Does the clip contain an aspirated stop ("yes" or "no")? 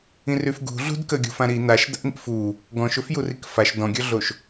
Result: no